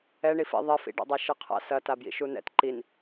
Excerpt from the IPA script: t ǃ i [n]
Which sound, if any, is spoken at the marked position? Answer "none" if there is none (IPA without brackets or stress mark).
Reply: n